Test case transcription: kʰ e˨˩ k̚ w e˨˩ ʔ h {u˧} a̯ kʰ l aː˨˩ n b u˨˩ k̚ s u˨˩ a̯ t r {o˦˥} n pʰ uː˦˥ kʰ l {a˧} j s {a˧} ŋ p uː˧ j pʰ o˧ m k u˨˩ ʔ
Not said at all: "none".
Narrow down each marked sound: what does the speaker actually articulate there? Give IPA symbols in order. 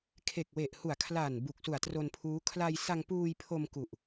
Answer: u˨˩, o˧, a˧, a˧

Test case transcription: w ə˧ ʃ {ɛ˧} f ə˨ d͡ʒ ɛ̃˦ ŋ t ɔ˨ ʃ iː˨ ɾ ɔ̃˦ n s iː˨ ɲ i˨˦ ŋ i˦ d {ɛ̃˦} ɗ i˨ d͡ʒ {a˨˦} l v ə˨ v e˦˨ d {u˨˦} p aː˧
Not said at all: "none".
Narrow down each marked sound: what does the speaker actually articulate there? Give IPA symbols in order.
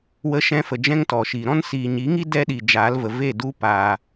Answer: ɛ̃˧, ɛ˦, a˨˦, u˦

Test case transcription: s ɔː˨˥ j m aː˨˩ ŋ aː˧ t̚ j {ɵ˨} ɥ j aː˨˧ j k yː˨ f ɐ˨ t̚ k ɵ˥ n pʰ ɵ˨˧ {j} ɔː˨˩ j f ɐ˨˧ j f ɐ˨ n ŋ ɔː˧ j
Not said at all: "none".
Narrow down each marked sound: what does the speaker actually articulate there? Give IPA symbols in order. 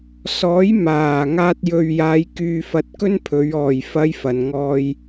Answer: ɵ˨, ɥ

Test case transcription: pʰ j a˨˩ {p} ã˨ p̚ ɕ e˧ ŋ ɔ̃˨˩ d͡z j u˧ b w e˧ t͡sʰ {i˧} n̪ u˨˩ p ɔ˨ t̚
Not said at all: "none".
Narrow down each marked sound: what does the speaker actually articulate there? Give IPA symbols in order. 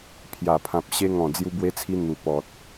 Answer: pʰ, i˧

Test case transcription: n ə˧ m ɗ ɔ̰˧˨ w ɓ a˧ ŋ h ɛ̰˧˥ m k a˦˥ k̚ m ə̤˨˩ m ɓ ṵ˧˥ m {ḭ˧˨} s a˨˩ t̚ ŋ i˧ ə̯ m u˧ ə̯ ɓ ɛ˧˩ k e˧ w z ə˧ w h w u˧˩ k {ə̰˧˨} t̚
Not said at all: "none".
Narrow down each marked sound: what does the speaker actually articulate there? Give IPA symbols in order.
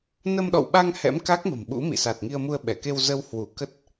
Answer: ḭ˧˨, ə˦˥

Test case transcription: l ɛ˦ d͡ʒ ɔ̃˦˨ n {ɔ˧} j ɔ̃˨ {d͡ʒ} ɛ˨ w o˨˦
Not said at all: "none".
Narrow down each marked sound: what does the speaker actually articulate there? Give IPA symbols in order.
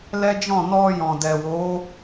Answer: ɔ˧, d

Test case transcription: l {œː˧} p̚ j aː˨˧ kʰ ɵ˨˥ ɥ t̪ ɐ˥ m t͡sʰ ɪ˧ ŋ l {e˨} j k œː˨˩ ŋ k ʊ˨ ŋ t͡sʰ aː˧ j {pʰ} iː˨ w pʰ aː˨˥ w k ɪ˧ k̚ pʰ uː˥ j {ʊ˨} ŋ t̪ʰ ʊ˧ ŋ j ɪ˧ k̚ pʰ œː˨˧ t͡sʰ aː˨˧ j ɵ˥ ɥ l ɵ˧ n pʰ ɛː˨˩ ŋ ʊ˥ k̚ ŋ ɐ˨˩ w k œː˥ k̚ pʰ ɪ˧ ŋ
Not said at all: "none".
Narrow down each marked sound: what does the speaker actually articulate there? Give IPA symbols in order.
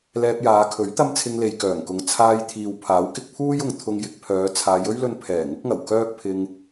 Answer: ɛː˧, e˨, t̪ʰ, ʊ˨

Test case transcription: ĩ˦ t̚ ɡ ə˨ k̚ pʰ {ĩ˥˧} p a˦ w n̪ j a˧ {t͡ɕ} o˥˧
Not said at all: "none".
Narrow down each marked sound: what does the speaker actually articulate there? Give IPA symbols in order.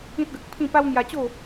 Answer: ĩ˥˧, t͡ɕ

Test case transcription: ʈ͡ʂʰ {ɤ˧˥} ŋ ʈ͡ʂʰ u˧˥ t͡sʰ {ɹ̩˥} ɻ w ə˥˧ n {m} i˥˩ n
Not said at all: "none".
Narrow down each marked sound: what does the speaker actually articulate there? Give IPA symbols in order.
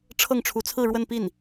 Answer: ɤ˥˩, ɹ̩˥˧, p

